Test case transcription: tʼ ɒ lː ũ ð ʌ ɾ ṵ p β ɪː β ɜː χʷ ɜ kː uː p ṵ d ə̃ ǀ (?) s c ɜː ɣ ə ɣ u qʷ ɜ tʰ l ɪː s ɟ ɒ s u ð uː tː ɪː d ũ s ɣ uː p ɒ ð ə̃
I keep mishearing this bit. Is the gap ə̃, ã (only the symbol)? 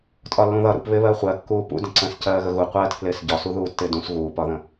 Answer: ə̃